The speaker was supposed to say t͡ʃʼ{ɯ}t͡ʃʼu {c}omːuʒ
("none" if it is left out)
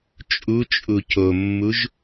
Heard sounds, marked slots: u, c

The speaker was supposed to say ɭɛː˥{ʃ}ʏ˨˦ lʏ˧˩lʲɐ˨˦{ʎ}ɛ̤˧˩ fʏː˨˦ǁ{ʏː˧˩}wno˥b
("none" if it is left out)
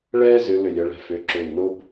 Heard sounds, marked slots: z, ɭ, ʏː˧˩

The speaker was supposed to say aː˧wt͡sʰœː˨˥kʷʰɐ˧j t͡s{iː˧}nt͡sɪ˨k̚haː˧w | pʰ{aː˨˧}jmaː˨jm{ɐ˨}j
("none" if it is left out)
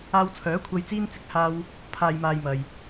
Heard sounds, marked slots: iː˧, aː˨, ɐ˨

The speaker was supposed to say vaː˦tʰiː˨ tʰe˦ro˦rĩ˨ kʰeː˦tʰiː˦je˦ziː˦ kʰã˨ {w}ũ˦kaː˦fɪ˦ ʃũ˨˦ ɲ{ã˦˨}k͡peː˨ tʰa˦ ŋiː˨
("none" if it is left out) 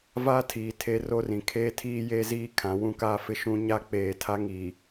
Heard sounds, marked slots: w, a˦˨

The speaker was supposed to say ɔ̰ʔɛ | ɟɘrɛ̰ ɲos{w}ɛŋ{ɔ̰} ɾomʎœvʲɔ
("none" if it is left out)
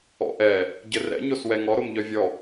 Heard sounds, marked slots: w, ɔ

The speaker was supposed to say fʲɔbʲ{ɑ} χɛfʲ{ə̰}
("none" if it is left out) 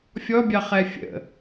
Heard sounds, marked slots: ɑ, ə̰

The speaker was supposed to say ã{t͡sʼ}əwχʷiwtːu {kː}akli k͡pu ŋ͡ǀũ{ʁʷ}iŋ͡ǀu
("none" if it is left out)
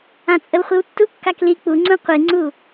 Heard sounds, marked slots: t͡sʼ, kː, qʷ

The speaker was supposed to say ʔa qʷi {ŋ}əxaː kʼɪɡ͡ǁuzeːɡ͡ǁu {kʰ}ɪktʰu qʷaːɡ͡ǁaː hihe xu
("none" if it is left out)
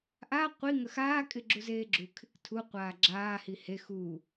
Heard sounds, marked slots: ŋ, kʰ

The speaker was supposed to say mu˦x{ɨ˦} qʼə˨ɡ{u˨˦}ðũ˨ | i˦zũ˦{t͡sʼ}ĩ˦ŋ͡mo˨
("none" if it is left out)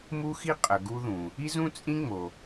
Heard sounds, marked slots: i˦, u˦, t͡sʼ

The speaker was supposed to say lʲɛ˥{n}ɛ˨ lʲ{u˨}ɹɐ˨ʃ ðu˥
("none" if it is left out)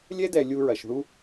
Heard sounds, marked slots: d, u˦

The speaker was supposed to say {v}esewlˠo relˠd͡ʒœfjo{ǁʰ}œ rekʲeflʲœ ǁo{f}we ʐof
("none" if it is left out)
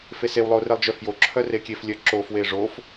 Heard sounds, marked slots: f, ǁʰ, f

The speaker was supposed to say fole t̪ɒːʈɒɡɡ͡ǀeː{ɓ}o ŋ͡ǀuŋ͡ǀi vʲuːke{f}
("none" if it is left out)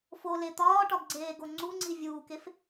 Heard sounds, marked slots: ɡ, f

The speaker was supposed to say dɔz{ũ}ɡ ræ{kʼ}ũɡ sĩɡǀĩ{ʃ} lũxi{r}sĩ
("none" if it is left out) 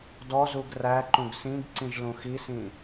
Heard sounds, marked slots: u, ǃ, ʒ, none

